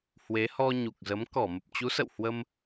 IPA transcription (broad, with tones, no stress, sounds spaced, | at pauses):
h w e˨˦ h ɔ˧ ɲ u˨˩ k̚ z ə˨˦ m k ɔ˧˩ m ə˨˩ p̚ t͡ɕ u˨˦ s ə̰˧˨ w h w ə˧ m